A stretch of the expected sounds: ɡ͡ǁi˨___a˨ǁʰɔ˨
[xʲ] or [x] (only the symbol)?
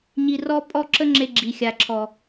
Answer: xʲ